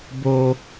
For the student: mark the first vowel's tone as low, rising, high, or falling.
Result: high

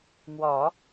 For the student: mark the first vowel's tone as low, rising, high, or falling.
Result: low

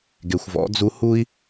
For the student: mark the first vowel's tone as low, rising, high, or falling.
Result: low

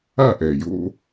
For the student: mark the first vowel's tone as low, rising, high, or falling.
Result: falling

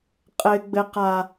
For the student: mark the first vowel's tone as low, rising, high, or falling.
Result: high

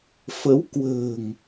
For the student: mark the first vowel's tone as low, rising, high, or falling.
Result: rising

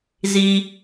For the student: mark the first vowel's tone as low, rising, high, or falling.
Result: high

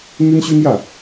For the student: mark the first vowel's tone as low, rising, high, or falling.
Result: high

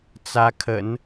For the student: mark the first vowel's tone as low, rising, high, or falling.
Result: rising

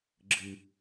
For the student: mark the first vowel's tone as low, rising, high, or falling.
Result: high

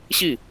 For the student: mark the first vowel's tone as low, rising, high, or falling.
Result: falling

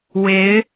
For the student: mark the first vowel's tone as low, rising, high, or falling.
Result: rising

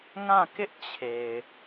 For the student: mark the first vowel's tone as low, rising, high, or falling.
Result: falling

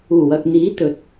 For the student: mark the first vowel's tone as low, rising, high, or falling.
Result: low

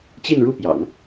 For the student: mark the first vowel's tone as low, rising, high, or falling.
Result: falling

